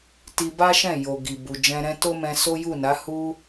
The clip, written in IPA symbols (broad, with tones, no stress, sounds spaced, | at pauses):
t i˧ b a˦ ʃ ɛ̃˦˨ j o˨ ɡ i˨ b u˨ d͡ʒ ɛ̃˧ ɾ ɛ̃˦ t o˦ m ɛ̃˧ s o˦ j u˦˨ n a˨˦ h u˦